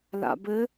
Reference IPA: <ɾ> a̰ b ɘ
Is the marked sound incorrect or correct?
incorrect: l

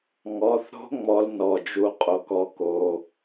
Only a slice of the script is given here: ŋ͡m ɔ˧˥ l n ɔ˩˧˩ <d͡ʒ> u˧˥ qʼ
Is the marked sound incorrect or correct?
correct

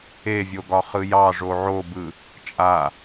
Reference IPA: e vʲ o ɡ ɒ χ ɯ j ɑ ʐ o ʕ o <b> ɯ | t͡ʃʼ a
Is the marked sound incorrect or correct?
correct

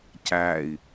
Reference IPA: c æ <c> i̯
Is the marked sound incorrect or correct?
incorrect: none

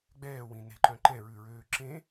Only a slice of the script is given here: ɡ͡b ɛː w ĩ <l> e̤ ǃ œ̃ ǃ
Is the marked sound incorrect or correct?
incorrect: n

